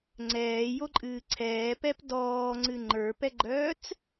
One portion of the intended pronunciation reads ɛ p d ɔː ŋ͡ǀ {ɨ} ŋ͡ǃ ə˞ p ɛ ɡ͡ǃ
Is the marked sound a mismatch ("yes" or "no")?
no